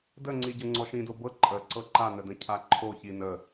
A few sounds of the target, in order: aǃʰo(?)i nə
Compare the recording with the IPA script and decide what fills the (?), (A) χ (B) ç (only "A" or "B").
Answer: B